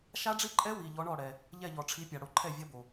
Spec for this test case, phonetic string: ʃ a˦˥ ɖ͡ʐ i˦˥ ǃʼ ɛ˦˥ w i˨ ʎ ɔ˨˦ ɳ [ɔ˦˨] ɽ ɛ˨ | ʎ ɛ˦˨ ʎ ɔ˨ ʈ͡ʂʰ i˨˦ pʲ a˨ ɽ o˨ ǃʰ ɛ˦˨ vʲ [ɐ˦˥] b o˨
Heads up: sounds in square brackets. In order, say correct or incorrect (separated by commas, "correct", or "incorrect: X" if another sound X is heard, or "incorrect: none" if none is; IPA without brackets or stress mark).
correct, correct